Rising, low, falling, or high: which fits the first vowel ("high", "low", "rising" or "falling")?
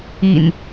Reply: low